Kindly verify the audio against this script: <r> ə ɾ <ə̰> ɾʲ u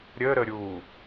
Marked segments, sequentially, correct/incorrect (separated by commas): incorrect, incorrect